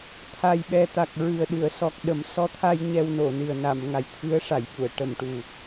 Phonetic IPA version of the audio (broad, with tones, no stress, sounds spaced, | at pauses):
t̪ʰ a˨˩ j ɓ ɛ˨˩ t̪ a˨˩ k̚ ɹ ɨ˨˩ ə̯ ɗ ɨ˨˩˨ ə̯ s ɔ˨˩ k̚ ɗ ə˨˩˦ m s ɔ˧˥ t̪ʰ a˧ j ɲ ɛ˧ w n o˨˩˨ n ɨ˨˩ ə̯ n a˨˩˨ m ŋ a˨˩ j t̪ʰ ɨ˧˥ ə̯ ʂ a˨˩˨ j ɓ u˨˩˨ ə̯ ʈ ə˨˩˨ m ʈ u˨˩